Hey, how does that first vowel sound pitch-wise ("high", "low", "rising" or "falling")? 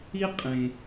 high